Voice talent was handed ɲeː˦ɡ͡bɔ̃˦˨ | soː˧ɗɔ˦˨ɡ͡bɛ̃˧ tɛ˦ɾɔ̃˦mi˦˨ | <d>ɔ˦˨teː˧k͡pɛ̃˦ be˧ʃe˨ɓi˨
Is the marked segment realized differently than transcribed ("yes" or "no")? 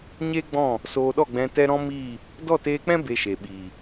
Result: no